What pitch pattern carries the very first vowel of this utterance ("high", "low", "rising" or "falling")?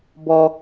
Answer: high